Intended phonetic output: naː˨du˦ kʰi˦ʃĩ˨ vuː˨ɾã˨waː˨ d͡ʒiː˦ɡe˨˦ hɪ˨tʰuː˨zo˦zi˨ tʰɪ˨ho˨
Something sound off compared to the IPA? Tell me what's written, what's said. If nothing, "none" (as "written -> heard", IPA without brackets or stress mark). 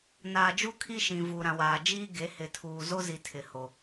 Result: d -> d͡ʒ